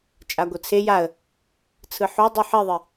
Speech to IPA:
t͡ʃʼ a ɡʷ ɯ t͡sʰ e j a ə̯ | t͡sʰ ɯ ħ o dˤ u ħ i ðˤ i

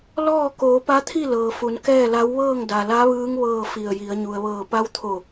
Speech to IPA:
l ɔː˥˨ k oː˩˧ p a˧˥ t̪ʰ i˥˨ l ɤː˩ f u˩˧ n k ɛː˥˨ l a˧˥ w ʋ ɤː˥˨ ŋ d a˩ l a˧˥ ʋ ɯː˧˥ ŋ ʋ ɤː˥˨ f i˧˩ ə̯ j i˩˧ ə̯ ɲ u˩ ə̯ ʋ ɤː˧˩ p a˧˥ w t̪ʰ o˧˩

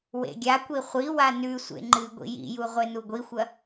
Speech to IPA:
w ḛ ɡʲ a kʷ i χʷ i w a n ʉ sʷ ḛ ŋ͡ǃ ɨ ɡʷ ḭ j ḭ j u ʁʷ e n u ɡʷ i xʷ ɐ

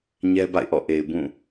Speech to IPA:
ɲ ɛ˦ b a̰˦˨ ɪ̯ ʔ ɔ̰˦˨ ʔ e˨ ɪ̯ b ũ˦˨

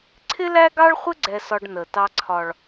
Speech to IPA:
ǀʰ ɪ˦ l æ˦ ɡ ɑ˦ ɭ χʷ ɪ˦ ɡ͡ǀ ɛ˦ s ɒ˦ ɖ n ə˨ t ɑ˦ ǀʰ ɒ˦ ɭ

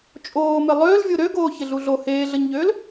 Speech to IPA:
t͡ʃʼ oː m ɪ lˠ øː l vʲ o ɾ ø ɡ oː ç ɪ ɮ u ɮ o h eː ɮ ə ɲ ʎ øː l

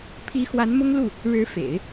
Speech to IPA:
pʰ i˧˥ x w a˧˥ n m ʊ˥ ŋ l u˥˩ | ɻ ɻ̩˧˥ f ḛ˨˩˦ ɪ̯

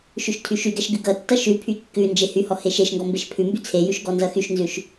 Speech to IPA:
ʃ ʉ ʃ tʰ y ʃ y ɡ ɛ ʃ ɡ ʉ ɡ ʌ tː ʌ ʃ ʉ pʰ y kː ʉ n d͡ʒ e h y h ɔ h e ʃ e ʃ ŋ ɡ ɔ m b e ʃ pʰ ʉ m b y t͡sʰ e j ʉ ʃ ɡ ɔ n z ʌ x y ʃ n z ʉ ʃ

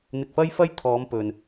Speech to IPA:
n̪ ɪ˧ k̚ f ɐ˥ j f ɐ˥ j t̪ʰ ɔː˨˧ m p ɵ˨ n

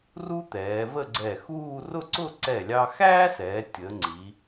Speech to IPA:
r u˥ t̪ ɛː˩˧ v ə˥˧ ɡ͡ǀ ɛ˧˩ x uː˥˧ r ʊ˥˧ ǀ ʊ˥˧ ǀ ɛ˧˩ lʲ ɑ˧ x æː˥ s ɛː˩˧ tʲ ə˩˧ ŋ͡ǀ i˩˧

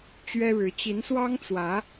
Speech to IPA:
t͡ɕ ɥ ɛ˦ ɻ ɻ̩˨˦ t͡ɕ i˨˦ n s w ɑ˦ ŋ t͡s w ä˨˦

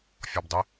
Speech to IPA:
fʲ ɔ b dˤ ɪ

